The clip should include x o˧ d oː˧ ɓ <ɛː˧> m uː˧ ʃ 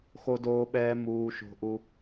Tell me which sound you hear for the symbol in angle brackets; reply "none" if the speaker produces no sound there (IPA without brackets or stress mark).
ɛː˧